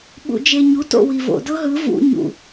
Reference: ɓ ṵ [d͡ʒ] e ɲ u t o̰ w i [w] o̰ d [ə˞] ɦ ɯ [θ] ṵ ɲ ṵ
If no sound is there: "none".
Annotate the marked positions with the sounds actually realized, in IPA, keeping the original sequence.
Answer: d͡ʒ, v, ɤ, v

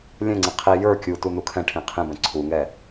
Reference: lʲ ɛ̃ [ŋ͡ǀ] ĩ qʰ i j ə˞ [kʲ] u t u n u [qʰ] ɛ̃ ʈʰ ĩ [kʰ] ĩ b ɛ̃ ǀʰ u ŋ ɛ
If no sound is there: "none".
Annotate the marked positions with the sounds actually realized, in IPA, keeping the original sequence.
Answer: ŋ͡ǀ, kʲ, kʰ, qʰ

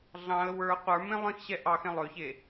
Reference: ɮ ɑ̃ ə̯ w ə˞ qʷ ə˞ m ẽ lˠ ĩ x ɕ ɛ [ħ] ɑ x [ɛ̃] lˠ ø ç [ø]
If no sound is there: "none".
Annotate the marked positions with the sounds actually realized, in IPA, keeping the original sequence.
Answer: ʔ, ɛ̃, e

